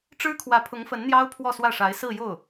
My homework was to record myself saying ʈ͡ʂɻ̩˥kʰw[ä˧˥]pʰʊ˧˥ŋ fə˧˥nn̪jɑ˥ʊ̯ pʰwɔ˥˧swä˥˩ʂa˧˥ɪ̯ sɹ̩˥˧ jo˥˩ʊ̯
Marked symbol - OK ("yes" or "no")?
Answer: yes